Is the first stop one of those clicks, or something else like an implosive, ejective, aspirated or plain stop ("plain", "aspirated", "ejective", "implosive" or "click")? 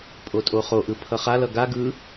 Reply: ejective